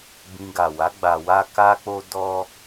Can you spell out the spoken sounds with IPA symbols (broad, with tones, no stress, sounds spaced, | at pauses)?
b ĩ˧ ɡ a˨ w a˨˦ ɡ͡b a˧ w a˦ k a˦ k͡p o˦ d ɔ˦